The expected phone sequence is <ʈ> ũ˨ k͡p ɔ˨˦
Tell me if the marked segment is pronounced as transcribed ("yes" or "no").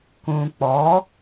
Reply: no